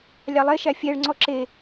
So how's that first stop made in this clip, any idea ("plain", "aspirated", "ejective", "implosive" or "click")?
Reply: click